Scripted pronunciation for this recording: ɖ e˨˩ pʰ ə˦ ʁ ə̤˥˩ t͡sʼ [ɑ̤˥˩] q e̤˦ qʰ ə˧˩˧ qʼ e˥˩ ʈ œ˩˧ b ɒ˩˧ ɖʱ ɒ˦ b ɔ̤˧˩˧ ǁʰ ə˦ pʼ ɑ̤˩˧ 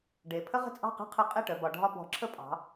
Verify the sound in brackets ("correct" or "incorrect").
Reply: correct